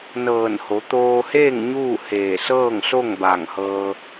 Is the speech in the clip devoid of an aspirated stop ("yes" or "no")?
yes